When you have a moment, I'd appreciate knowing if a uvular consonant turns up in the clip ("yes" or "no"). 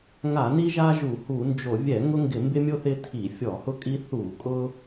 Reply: no